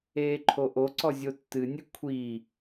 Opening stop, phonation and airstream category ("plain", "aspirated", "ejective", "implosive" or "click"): click